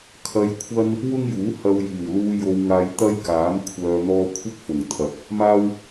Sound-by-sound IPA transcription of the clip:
kʰ ɐ˧ j kʷʰ ɐ˥ n | w ʊ˥ ŋ j uː˨˥ h ɐ˧ w j iː˨˩ w l uː˧ j o˧ w ŋ aː˧ j t̪ ɐ˥ j k aː˨˥ m kʷʰ œː˨ n̪ ɔː˧ kʷʰ ɪ˥ k̚ f ʊ˨˩ ŋ t̪ʰ ɐ˨˥ k̚ | m aː˥ w

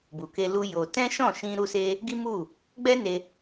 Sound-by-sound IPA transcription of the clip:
b u˨ k e˧ l u˧ j o˧ t ɛ̃˦ ʃ ɔ̃˦˨ ʃ ĩ˧ ɾ u˦ s e˦ | ɡ i˦ m u˦˨ | ɡ͡b ɛ˦ n e˧

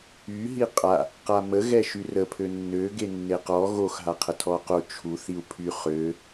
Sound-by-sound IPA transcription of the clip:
y ɦ i qʼ a | q a m ə ɣ ɛ ʃ y r ə pʰ ø nː ø ɡ e nː e q ɔ ɣ o x ɦ a qʰ ə tʰ ɔ q o t͡ʃʰ u θ i u̯ pʰ y χ ø

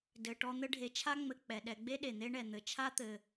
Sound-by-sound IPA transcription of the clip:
d ɘ˨ ʈ ɔ˦ n̪ ɘ˦ ɖʱ e˨ t͡ʃʰ a˥ ŋ͡m ɘ˨ k͡p ɛ˩ ɗ ɛ˨ ɡ͡b e˥ ɗ e˩ n̪ e˦ ɳ ɛ˩ n̪ ɘ˩ t͡ʃʰ a˥ t̪ ɘ˩

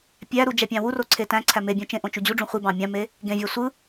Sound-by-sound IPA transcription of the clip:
pʲ æ ɾ u d͡ʒ æ pʲ ɑ̃ w u r o ǀʰ e t æ̃ ǀʰ æ m e bʲ ũ t͡ʃ ẽ ʔ õ t͡ʃ u d͡ʑ u ɖ͡ʐ ũ χʷ i b ɑ̃ mʲ ɑ̃ m e | ɡ ẽ vʲ ɑ sʷ ɯ

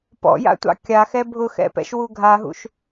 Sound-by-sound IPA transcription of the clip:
p ɔ̰ j a̰ tʷ ɑ̰ kʲ a x ɛ bʱ ʊ x ɛ̰ p ɛ̰ ʃ w u ɡʱ a ɦ ṵ ʃ

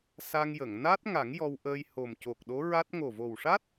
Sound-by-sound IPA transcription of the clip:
s a˧ ŋ j ə˨˩˨ ŋ n a˦˥ t̚ ŋ a˨˩˦ ŋ j ɔ˧ w ʔ əː˧ j h o˨˩ m c o˨˩ k̚ ɗ o˧˥ ɹ a˦˥ t̚ ŋ o˨˩ v o˨˩ w ʂ a˦˥ t̚

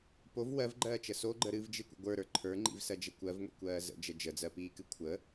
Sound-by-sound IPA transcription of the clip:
p o v w ɜ v ɡ͡ǃ ɜː t͡ʃ ə s o ɡ͡ǃ ə ɾ ɨ v d͡ʒ ɨ kʷ ə̰ ɡʷ ə˞ ɾ ə˞ ǃʰ ə˞ ŋ͡ǃ ḭ v s ɜ d͡ʒ ə kʷ ɜ v ŋʷ ḭ kʷ ɜː z ə̰ d͡ʒ ə d͡ʒ ə d͡z ɜ p iː k ɨ kʷʰ ə

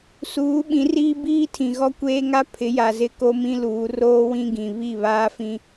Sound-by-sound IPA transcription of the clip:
s uː˨˦ ɓ ĩ˨˦ r iː˦ b iː˦ tʰ ĩ˨ ɣ ɔ˦ kʷ eː˦ ŋ a˦ pʰ ɪ˨˦ j a˨ z ɪ˦ k o˦ m ĩ˦ l uː˨˦ r oː˦ w ĩ˦ ɡ ĩ˨ β i˦˨ β aː˦ f ĩ˦

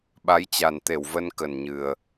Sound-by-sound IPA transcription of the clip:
ɓ a˨˦ j t͡ɕ a˨˩ n t̪ e˧˩ w v ə˧ n k ə˨˩ n ɲ ɨ˨˩ ə̯

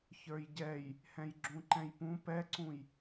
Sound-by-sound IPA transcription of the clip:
ç ə˞ j ɟ ɛ j | h ɛ̃ j ɡ͡ǁ ũ ǃ ɛ̃ j p ũ p ɛ ǀ ũ j

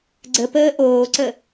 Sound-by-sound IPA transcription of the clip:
ɡ͡ǀ ə p əː ʔ oː ǀ ə

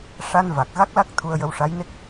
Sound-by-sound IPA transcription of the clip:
ʂ a˧ n v a˨˩ k̚ ɣ a˦˥ k̚ l a˦˥ k̚ t̪ʰ u˧ ə̯ j ə˧ w ʂ a˧˥ j n e˦˥ k̚

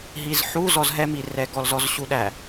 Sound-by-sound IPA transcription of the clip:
ɦ i z ħ u z ɔ z ɦ ɛ m i r ɛ ɡ ɔ l z ɔ z ɕ u ɗ æ

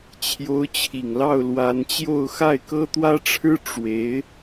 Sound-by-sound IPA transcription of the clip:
t͡ɕʰ j o˧˥ ʊ̯ t͡ɕʰ i˨˩ ŋ l ɑ˥˩ ʊ̯ l w a˧˥ n t͡ɕ j o˥˧ ʊ̯ x a˥˩ ɪ̯ k ɤ˥ t̪ w ä˥ ʈ͡ʂʰ ɻ̩˥ ʈ͡ʂ w e˧˥ ɪ̯

